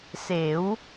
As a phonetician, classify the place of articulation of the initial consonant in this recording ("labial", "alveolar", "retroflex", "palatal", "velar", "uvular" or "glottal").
alveolar